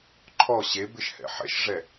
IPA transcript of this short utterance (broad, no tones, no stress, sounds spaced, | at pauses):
ǃʰ ɔ ɕ e b ɪ ʃ h ɛ̰ ħ ɛ̰ ʃ ʐ ɛ